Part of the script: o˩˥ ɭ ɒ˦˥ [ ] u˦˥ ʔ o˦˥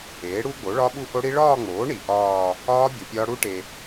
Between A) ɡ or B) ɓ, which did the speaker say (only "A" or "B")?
B